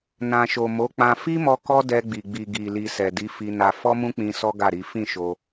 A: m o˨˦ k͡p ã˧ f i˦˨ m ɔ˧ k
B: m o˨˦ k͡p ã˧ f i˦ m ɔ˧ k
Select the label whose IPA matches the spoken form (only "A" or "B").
B